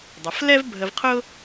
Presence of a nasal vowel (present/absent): absent